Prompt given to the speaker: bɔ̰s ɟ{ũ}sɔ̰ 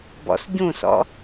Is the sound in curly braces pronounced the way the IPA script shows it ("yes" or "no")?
yes